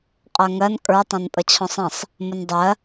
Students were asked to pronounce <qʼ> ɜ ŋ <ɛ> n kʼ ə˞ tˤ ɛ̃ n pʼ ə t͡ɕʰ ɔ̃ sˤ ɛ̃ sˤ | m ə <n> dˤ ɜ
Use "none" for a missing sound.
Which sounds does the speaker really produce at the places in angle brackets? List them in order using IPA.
qʼ, ɜ, n

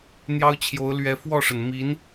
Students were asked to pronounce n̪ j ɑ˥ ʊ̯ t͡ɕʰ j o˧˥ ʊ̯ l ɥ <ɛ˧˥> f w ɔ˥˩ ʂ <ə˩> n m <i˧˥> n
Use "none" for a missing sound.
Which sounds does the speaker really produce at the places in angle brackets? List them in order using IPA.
ɛ˧˥, ə˩, i˧˥

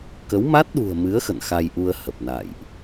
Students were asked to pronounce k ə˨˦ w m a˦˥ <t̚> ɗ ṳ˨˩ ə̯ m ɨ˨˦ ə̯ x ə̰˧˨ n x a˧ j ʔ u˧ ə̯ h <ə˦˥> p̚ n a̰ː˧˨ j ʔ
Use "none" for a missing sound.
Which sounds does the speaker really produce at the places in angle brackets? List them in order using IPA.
t̚, ə˨˩

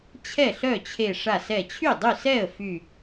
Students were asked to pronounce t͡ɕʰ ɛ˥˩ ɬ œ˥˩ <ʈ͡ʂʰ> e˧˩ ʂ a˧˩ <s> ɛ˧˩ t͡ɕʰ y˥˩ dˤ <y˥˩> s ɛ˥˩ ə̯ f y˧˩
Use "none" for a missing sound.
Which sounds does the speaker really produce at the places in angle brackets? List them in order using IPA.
t͡ɕʰ, s, y˥˩

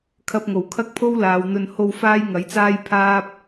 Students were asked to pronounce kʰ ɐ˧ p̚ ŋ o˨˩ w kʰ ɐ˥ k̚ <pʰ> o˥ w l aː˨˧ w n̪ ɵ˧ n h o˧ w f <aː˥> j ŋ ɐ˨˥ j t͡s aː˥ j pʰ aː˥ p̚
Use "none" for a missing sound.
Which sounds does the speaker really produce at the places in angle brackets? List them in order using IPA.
pʰ, aː˥

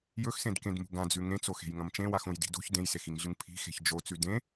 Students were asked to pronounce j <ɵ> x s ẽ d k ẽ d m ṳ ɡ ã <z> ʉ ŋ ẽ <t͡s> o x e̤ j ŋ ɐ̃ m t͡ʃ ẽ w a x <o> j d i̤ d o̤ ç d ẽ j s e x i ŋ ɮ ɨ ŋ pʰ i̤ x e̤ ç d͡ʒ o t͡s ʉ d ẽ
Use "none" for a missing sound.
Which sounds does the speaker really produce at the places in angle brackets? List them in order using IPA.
ɵ, d͡z, t͡s, õ

